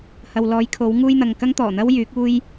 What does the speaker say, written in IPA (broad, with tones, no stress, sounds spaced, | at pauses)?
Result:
h ɐ˨ w l ɔː˨˧ j kʰ o˨˥ w ŋ uː˥ j n̪ ɐ˨ ŋ k ɐ˥ ŋ t̪ ɔː˨˩ n̪ ɐ˥ w j yː˨˥ k̚ uː˥ j